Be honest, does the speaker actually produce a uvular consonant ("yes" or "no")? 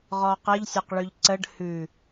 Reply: yes